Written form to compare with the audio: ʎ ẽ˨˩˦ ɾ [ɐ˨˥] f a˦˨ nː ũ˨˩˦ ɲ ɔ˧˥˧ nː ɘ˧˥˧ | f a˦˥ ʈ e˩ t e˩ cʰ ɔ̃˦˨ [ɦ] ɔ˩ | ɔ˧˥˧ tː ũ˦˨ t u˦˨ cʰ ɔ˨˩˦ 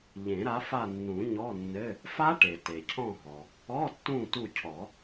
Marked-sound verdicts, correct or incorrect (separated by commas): incorrect, correct